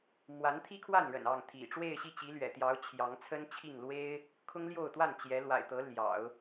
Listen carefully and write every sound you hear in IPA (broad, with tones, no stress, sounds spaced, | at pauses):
m w a˧˥ n t̪ʰ i˥ kʰ w a˥˩ n ɻ ə̰˨˩ n ɑ˥˩ ŋ t̪ʰ ḭ˨˩ ʈ͡ʂ w e˥˧ ɪ̯ ɕ i˥˩ t͡ɕ i˧˥ l ɥ ɛ̰˨˩ t̪ j ɑ˧˥ ʊ̯ t͡ɕʰ j ɑ˧˥ ŋ t͡sʰ ə˥ n t͡ɕʰ i˥˩ ŋ l w e˥ ɪ̯ | kʰ ʊ˥ ŋ l j o˥˧ ʊ̯ t̪ w a˥˩ n t͡ɕ j ɛ˧˥ l w a̰˨˩ ɪ̯ t̪ ɤ˧˥ l j ɑ̰˨˩˦ ʊ̯